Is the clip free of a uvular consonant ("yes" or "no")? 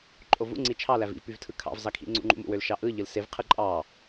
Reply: no